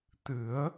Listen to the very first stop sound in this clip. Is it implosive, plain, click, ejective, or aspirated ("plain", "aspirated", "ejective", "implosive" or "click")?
plain